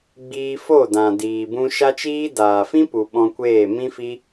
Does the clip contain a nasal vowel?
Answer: yes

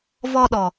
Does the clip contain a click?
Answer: no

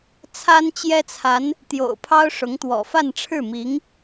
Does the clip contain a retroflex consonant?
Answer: yes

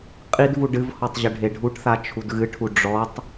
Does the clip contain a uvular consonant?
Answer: yes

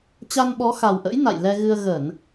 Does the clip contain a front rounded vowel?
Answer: no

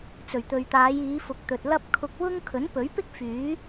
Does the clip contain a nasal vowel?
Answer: no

